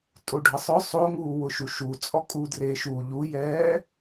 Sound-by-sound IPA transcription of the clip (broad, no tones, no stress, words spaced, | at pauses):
tʼoɖʱəsˤʊ sˤoŋuːwʊʃu ʃu t͡sʼɔkʼudre ʃu ʎujɛː